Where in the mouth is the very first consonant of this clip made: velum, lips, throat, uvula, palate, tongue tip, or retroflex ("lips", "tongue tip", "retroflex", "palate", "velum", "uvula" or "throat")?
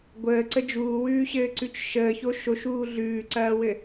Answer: velum